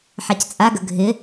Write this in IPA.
ħ a c t͡sʼ a ɡ ə ɡʱ ɪ

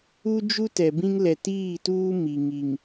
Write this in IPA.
u˦ d͡ʒ u˦ t ɛ˨ b ĩ˦ ŋ l ɛ˨ t iː˦˨ t uː˦ m i˨ ŋ i˨ ŋ

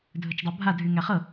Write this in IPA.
dʱ ɵ t͡ʃ dˤ ɤ bʱ a dʱ y ŋ æ χ ɤ

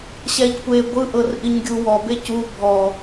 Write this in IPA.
ɕ ɛ ʎ kʷ e ɡʷ ɯ ʔ ɤ r ʔ i ɲ ɡʲ u w ɔ b e c u bʱ ɔ

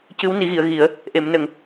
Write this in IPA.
c ɨ˧˥ w n i˨˩˦ ɣ i˨˩˨ ə̯ ɣ i˨˩˦ ə̯ | ʔ e˨˩˨ m n ə˨˩˨ ŋ

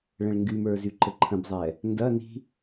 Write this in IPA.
ɭ ə̃ ɭ ŋ ɡ y m ə˞ z y ǃ ə ǃʰ ə̃ b zˤ ɛ | n d ɐ n i̤

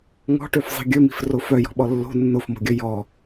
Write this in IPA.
ŋ ɔ̤ ʈ ø f zˤ i̤ ɡʲ ɵ m i̤ f r o f œ j ɔ̤ ɓ ɔ lː o̤ nː o f m o̤ ɡʲ ɵ j ɔ

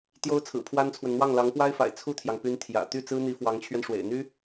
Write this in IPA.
t̪ j o˥ ʊ̯ t͡sʰ ɹ̩˨˩ pʰ w a˥ n t͡sʰ w ə˨ n n̪ w ɑ˥˩ ŋ l ɑ˧˥ ŋ p w a˥ ɪ̯ f a̰˨˩ ɪ̯ t͡sʰ u˥˩ t̪ʰ j ɑ˩ ŋ p y˧˥ n t̪ʰ j ä̰˨˩ t̪ y˥˩ t͡s ɹ̩˥ n̪ i˧˥ f w ɑ˧˥ ŋ t͡ɕʰ ɥ ɛ˧ n ʂ w ḛ˨˩ ɪ̯ n̪ y˥

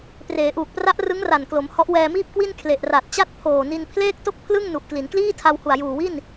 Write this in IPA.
p r eː˩˦ ʔ uː˨˩ k̚ p r a˦˥ ʔ r ɯ˦˥ ŋ r a˨˩ n k l o˩˦ m h ɔ˦˥ ʔ w ɛː˧ m iː˥˩ p̚ k w i˥˩ n kʰ l e˨˩ ʔ r a˨˩ t̚ t͡ɕ a˥˩ t̚ pʰ oː˨˩ n i˧ n pʰ l eː˥˩ k̚ t o˥˩ k̚ pʰ l ɯ˥˩ ŋ n u˨˩ ʔ k l i˩˦ n k l iː˥˩ tʰ a˧ w h u˨˩ a̯ j uː˨˩ w i˥˩ n

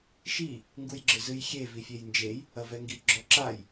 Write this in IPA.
ʃ i | ŋ ɡ u j ɡ͡ǁ ɘ z ɨ j xʲ e v i fʲ e j n d͡ʒ e j | ɐ v ɛ ŋ ɡ i ɡ͡ǁ ɔ ǁ a j

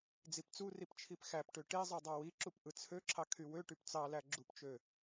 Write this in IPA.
d͡z i p t͡s u r i p t͡ʃʰ i p x æ p ʈ ø ʈ e zˤ ɯ dˤ ɑ w i ǁ u p ʔ ɯ t͡sʰ ø ǁʰ ɑ kʰ y w ø ʈ y p t͡s ɑ l æ ɡ͡ǁ u p t͡ʃ ø

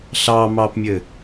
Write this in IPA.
ɬ ɑ m ɑ p mʲ ɘ

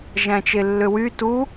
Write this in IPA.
ʒ æ̃ t͡ʃ e lː ø w y t u

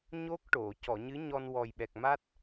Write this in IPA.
ɲ o˦˥ k̚ ʈ o˨˩˨ c ɔ˨˩˨ ɲ ɨ˧˥ ɲ ɔ˧ n w ɔ˨˩ j ɓ ɛ˨˩ k̚ m a˦˥ t̚

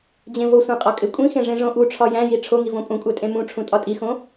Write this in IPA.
d͡ʑ ẽ v o sʷ ẽ qʼ ɒ kʼ e kʷʼ ĩ x ẽ ʐ ẽ ʐ õ ʔ u ʈ͡ʂʰ ɒ j æ̃ j i ʈ͡ʂʰ o ŋ i v õ pʼ ũ kʷʼ æ tʼ ẽ m ũ ʈ͡ʂʰ ũ tʼ ɒ tʼ i x õ

